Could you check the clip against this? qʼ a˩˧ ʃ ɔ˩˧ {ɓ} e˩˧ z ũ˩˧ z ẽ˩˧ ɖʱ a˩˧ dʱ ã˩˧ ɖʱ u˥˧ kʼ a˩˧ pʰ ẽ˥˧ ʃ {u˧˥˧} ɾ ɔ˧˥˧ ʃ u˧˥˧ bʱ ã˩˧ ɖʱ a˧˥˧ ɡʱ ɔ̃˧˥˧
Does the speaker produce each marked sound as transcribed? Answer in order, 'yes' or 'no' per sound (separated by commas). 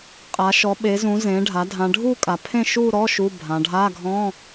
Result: yes, no